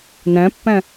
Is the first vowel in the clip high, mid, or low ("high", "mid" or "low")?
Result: low